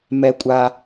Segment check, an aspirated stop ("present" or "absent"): absent